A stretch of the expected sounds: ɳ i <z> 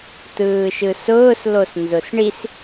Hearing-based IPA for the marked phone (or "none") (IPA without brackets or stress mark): s